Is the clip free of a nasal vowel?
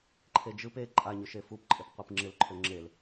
yes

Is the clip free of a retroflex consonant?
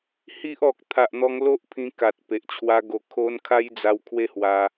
yes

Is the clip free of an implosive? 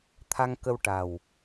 yes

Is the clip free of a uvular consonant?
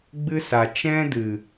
yes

